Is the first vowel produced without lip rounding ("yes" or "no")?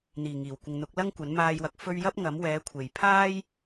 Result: yes